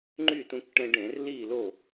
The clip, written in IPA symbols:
ŋ͡ǃ y˥˨ t ũ˧ k ʈ ẽ˧ ɖ ẽ˧˩˧ r l i˥˨ l o˥˨

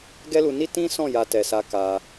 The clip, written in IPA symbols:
ɡ ɛ˦ l u˧ n i˦ t ĩ˦ s ɔ̃˦˨ j a˧ t ɛ˨ s a˧ k a˧

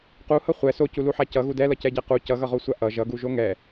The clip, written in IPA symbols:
q u h ʌ χʷ ɛ s o c u l u ħ a c ʌ ɣ u d ɛ l ʌ c ɛ ɟ a q u c ʌ ɣ ʌ ʁ o sʷ a ʔ ʌ ʒ ʌ ɡ u ʒ o ŋ ɛ

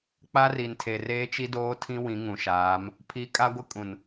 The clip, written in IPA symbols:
k͡p a˦ r i˨ n tʰ e˨ r eː˦ t͡ʃ i˦ d oː˦ tʰ ĩ˦ w ĩ˨˦ ŋ ũ˨ ʃ aː˨˦ m | pʰ i˨˦ kʼ a˦ ɡʷ ɪ˦ kʼ ũ˨ n

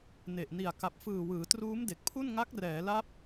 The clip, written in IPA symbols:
n e˨˩ ʔ n i˨˩ a̯ k a˨˩ p̚ f ɯː˨˩ w ɯː˩˦ t r uː˦˥ m d e˨˩ k̚ pʰ u˥˩ n ŋ a˦˥ k̚ r ɛː˩˦ l a˦˥ p̚

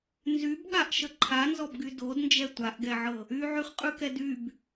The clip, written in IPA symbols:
n z y b ɠ a ʔ ʃ ə ǃʰ a n z ɔ b ɡ y d o d n d͡ʒ ɛ tʷ a ʔ ɡ ɛ ʕ ɤ | y ʕ y χ qʼ ʉ k ɛ d y b

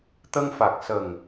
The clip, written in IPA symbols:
t̪ ə˧ ŋ f a˨˩ k̚ s ə˨˩ ŋ

